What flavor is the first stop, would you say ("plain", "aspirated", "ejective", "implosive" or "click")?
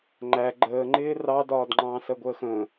click